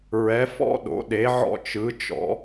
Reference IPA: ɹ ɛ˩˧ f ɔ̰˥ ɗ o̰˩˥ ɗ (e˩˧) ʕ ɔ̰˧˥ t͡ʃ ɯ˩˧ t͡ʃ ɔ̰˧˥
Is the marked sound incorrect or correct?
correct